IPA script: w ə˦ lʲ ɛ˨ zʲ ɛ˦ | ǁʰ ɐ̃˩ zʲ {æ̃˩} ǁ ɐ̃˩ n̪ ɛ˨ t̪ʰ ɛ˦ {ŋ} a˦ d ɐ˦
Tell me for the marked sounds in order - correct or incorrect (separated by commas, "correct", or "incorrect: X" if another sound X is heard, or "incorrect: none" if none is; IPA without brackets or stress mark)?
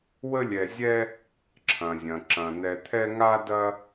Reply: incorrect: ɐ̃˩, correct